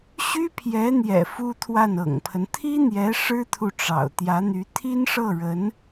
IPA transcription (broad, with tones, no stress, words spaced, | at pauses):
ɕy˥pʰjɛ˧˥n̪jɛ̰˨˩ fu˥t̪ʰwa˥˩nɤ̰˨˩ŋpʰə˦n t̪ʰi˥n̪jɛ˧˥ ʂɻ̩˥t̪ʰu˨ ʈ͡ʂɑ̰˨˩ʊ̯ t̪jä˧˥n̪y˧˥ t̪ʰi˥nʂɤ˥˩ɻə˧˥n